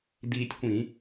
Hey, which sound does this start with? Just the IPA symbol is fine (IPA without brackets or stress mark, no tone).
d